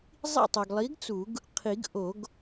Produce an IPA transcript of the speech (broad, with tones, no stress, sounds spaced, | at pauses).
zˤ ḭ˦˨ tˤ o˨ ɡ lˠ i˨˥ ɡ t͡s u˨˩˦ ɡ | qʰ i˨˩˦ ɡ ʔ o˨˩˦ ɡ